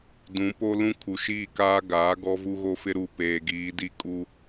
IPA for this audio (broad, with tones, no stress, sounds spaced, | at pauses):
d ũ˨˦ p o˦ l ũ˦ kʰ u˨ ʃ iː˦˨ k aː˦ ɡ aː˨˦ ɡ ɔ˦ v u˦ ɣ o˦ f ɪ˦ ɾ u˨ p eː˨ ɡ iː˨˦ d i˦ kʼ u˦